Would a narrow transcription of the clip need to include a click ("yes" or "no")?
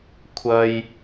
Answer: no